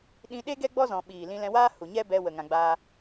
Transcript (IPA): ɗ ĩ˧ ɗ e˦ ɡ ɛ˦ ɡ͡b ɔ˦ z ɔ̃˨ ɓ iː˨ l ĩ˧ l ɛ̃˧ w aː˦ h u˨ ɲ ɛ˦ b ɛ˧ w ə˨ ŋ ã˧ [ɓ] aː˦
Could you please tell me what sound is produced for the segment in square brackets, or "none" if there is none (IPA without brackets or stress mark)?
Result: ɡ͡b